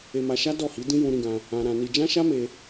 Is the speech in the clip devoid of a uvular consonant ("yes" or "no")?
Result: yes